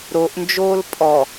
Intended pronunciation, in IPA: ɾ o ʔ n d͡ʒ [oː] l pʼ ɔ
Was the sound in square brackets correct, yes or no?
yes